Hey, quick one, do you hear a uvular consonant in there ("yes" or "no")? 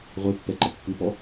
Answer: yes